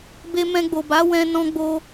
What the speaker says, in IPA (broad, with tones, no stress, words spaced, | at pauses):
be˧mɛ̃˧ɡ͡bo˨ba˨˦ wɛ̃˧ nɔ̃˦ɡ͡bo˦